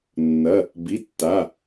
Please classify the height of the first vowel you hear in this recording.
low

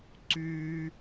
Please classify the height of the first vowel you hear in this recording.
high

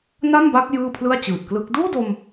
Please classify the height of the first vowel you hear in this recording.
low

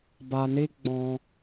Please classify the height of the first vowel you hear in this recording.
low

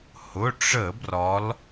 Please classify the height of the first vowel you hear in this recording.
high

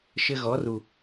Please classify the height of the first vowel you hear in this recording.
mid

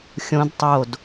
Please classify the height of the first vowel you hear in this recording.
mid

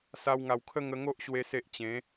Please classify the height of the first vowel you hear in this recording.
low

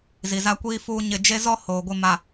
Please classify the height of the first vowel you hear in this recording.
high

